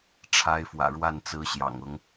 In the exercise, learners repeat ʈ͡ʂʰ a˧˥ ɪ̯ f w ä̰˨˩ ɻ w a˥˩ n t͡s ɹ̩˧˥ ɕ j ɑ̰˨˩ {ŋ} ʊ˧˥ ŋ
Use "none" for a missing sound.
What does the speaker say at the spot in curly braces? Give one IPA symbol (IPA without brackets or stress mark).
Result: ŋ